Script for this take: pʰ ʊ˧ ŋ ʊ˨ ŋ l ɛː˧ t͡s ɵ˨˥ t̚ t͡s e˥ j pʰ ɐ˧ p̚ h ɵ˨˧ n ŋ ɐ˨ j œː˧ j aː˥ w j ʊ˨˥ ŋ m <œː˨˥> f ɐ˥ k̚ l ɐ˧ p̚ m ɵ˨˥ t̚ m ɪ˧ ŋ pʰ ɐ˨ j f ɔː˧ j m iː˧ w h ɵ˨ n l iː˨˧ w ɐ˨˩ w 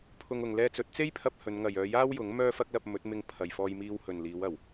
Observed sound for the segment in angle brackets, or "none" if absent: œː˥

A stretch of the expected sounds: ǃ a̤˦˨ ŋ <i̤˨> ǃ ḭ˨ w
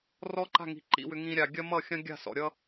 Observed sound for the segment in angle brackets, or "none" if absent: i̤˨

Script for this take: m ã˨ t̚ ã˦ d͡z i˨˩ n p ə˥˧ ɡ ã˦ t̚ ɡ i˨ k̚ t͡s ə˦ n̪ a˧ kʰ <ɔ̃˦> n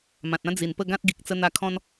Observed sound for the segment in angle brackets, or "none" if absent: ɔ̃˦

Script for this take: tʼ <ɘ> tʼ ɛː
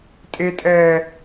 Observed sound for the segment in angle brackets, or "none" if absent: e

